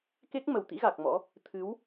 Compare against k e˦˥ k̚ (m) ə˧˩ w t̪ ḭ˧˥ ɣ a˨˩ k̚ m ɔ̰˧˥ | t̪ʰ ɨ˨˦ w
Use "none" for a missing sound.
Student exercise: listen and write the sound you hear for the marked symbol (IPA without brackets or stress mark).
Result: m